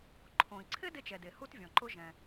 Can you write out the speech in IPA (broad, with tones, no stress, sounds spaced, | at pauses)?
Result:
ǃʰ õ˩ i̯ ǀʰ ɪ˥ d ɪ˥ t͡ʃ ɛ˩ d e˩ h u˥ t vʲ ɔ̃˩ ǃ ʊ˥ ʒ ɛ̃˩